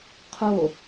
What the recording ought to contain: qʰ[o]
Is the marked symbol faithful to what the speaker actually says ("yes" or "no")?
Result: yes